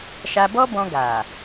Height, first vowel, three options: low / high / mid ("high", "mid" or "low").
low